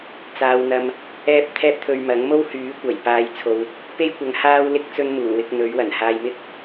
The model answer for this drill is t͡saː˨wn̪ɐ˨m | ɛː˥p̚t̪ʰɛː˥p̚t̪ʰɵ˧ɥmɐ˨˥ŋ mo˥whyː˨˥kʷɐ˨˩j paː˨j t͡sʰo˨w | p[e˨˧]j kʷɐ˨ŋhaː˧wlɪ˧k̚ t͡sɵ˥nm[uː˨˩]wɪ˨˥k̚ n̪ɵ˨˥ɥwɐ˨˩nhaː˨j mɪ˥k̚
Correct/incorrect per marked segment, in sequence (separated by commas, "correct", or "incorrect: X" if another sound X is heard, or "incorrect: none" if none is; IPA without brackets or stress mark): incorrect: e˥, correct